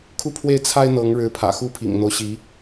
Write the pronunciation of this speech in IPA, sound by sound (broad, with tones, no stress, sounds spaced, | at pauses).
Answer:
kʰ u˥˧ pʰ w e˥˩ ɪ̯ t͡sʰ a˥ ɪ̯ n̪ ɤ˧˥ ŋ ɻ ɻ̩˧˥ pʰ ä̰˨˩ x u˥ pʰ ḭ˨˩ ŋ n̪ o˦ ʊ̯ ɕ i˧˥